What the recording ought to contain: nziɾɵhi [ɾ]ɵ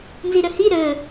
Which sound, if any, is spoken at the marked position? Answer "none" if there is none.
ɾ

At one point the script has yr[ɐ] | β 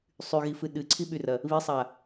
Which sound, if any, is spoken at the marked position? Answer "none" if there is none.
ɐ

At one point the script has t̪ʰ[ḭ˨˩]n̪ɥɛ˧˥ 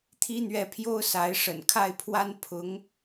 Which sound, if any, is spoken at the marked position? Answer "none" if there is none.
i˥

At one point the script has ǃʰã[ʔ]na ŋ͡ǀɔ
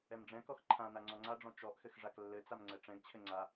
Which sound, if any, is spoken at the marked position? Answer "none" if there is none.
none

